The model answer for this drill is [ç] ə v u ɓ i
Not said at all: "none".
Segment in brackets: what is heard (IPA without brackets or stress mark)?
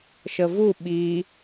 ʃ